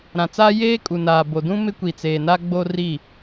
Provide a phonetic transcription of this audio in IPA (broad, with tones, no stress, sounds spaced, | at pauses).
ɾ ã˨ t͡s aː˦ j eː˦ kʼ u˨ n aː˨ b o˨ d ũ˦ m ɪ˦ kʷ i˨ t͡s eː˨ n a˦ ɡ͡b o˦ r i˦˨